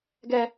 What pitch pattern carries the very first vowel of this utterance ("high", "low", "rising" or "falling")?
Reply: high